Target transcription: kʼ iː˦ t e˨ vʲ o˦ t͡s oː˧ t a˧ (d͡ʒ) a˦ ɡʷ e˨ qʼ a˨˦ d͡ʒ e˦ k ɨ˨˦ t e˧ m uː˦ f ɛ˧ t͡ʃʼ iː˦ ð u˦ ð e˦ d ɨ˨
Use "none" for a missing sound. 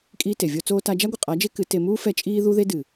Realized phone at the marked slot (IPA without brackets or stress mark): d͡ʒ